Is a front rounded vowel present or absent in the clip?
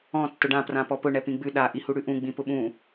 absent